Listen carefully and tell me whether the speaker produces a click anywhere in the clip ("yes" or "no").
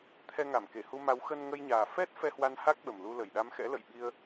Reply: no